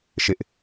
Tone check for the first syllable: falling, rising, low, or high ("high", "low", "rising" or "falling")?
high